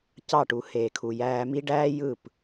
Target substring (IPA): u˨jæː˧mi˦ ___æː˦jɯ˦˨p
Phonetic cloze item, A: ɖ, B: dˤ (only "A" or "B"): A